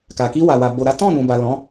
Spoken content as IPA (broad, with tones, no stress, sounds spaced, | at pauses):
k a˨ k i˧ w a˨ w a˨ b o˨ ɾ a˨˦ t ɔ̃˦˨ n ũ˨ b a˨ l ɔ̃˨˦